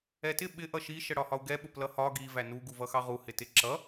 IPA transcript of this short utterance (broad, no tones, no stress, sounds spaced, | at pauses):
ɛ t ɪ ɓ ɪ ʔ ʌ ʃ i ʃ ə ɽ ɒ h ɒ u̯ ɡ ɛ ɓ ʊ p l ʌ h ɒ ɡ i v æ n u ɡ u v ʌ x ɑ ʁ u h ɪ t ɪ ǁ ʌ